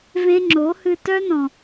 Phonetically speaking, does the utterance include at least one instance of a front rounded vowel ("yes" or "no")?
yes